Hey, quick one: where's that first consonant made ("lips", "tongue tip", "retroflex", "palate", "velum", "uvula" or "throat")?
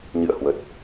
palate